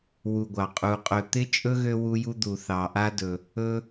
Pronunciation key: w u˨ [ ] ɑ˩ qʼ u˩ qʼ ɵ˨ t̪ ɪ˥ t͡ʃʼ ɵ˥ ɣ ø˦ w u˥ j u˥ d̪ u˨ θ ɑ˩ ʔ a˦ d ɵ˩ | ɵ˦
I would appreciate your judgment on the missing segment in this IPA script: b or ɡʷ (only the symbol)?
ɡʷ